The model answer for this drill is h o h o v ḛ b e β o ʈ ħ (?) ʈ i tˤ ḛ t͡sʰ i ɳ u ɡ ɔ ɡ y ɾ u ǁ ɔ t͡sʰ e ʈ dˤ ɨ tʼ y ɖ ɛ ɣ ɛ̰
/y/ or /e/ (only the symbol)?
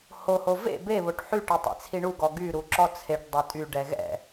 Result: y